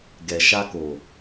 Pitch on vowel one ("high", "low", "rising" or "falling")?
low